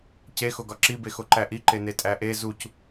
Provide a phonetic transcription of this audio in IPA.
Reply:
c e x o ɡ ɒ ǁ i b e x o ǃ æ ʔ i ǃ e n e tʼ æ ʔ e z u c

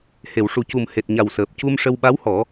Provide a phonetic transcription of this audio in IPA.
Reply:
h e˨˩˨ w ʂ u˨˩ c u˨˩ m h e˨˩ t̚ ɲ a˨˩ w s əː˨˩ p̚ c u˧ m ʂ ə˧ w ɓ a˧˥ w h ɔ˨˩˦

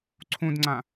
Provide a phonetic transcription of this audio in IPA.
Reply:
ǀʰ ũ d ŋ͡ǀ ã

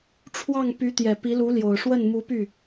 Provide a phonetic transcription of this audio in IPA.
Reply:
ʈ͡ʂʰ w ɑ˥˩ ŋ p y˧˥ t̪ j ɛ˨˩ p i˧˥ l u˧˥ l j o˨˩ ʊ̯ ʂ w ə˥˩ n m u˧˥ p y˥˩

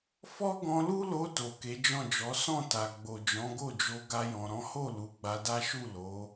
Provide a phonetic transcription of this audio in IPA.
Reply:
f ɔ˦ ɡ ɔ̃˧ l u˦ l o˧ t o˨ k e˨˦ d͡ʒ ɔ̃˦˨ d͡ʒ ɔ˨˦ s ɔ̃˦˨ t a˨ ɡ͡b o˨ d͡ʒ ɔ̃˨˦ ɡ o˦˨ d͡ʒ o˧ ɡ a˦ j ɔ̃˧ ɾ ɔ̃˦ h o˦˨ l u˨˦ ɡ͡b a˧ d a˦ ʃ u˦˨ l o˨˦

